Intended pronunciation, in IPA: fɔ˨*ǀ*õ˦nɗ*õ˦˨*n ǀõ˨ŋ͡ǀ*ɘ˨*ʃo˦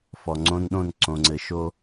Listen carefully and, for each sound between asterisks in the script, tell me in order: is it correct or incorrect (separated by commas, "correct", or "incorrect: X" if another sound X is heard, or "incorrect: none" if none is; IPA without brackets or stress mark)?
incorrect: ŋ͡ǀ, correct, correct